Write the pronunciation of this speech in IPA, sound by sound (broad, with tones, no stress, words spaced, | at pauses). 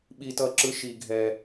ɓi˨tʌ˨ǁɯ˨ ʃi˨ ɡʱɛ˨